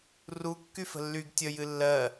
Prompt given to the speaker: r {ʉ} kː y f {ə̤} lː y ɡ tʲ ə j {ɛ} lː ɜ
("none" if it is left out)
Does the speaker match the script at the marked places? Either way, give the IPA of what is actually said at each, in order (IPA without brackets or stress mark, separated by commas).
u, ə̤, ɨ